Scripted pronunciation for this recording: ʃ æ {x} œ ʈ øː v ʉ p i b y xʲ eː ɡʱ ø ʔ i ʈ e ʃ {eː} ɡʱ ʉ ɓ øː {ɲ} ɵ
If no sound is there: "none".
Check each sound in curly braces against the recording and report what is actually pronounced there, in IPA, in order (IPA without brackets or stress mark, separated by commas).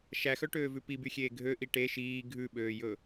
x, iː, j